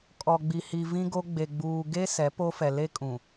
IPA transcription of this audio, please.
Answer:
kʼ ɔ˨ ɡ͡b i˨ h i˨ v ĩ˦ ɡ o˦ ɡ͡b e˨ ɡ͡b uː˨ ɡ e˦ s ɛ˨˦ p o˦ f ɛ˨ l e˦ kʼ ũ˨

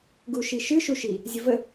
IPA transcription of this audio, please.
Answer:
ɡ u ʃ i ʃ ɨ ʃ u ʃ i | zʲ ə v ə

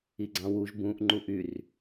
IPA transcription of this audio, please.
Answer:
i ɡ͡ǀ ɑ̃ w u ʒ b ũ ʔ ŋ͡ǃ u ʔ y r

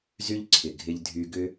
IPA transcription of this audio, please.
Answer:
z y˦ ʎ ǀʰ ɪ˨ ɡʱ ɪ˧ ʎ dʱ y˧ ɡ ʏ˦

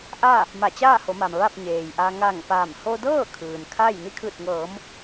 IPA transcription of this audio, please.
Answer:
ʔ a˥˨ | m a˧˩ t͡ɕ aː˥˨ h o˩˧ m a˩ m ʋ a˥˨ p̚ ɲ eː˩ j ʔ a˧ ŋ a˧˩ ŋ p aː˧˩ m h o˧ d ɤː˥˨ kʰ ɯː˩ n kʰ a˥˨ j n i˧ kʰ ɯː˧˩ t̚ ŋ ɤː˩˧ m

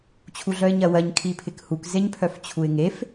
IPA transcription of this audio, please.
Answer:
t͡ɕʰ u ɮ œ ɪ̯ ɲ ɜ w ɜ ɲ kʰ i pʰ ɪ k h u k z e ɲ pʰ œ f t͡ɕʰ u ɪ̯ ŋ e f

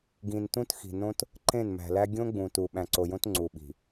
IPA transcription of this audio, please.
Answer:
ɡ ĩ˨ n t ũ˦ t x i̤˨ n õ˦ t | ǃ ẽ˦˨ n m æ̤˨ l æ˦ ɡʲ õ˦ ɡ͡b ũ˨ t u˨ ɓ æ̃˨ ǀ o˨ j õ˦ t ŋ͡ǀ u˨ ɓ i̤˨

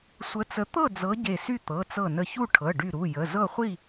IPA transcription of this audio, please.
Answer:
sʷ ə˨˦ t͡s ə˨˦ t̪ ɤ˥˨ d͡z ɤ˨˦ ɟ e˧˩ s y˥˨ t̪ ɤ˩˧˩ t͡s ɤ˧˩ n ə˧˩ ç u˥˨ ʈʰ ɤ˩˧˩ ɖ y˧˩ ɾ u˩˧˩ j ə˩˧˩ z ɤ˥˨ χʷ i˥˨

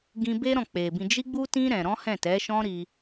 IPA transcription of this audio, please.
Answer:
ɡ ĩ˧ b e˦ ɾ ɔ̃˦˨ k͡p e˨ b ĩ˧ d͡ʒ i˦ ɡ͡b u˦ t ĩ˦ ɾ ɛ̃˧ ɾ ɔ̃˦ h ɛ̃˦˨ t ɛ˨˦ ʃ ɔ̃˦ ɾ i˧

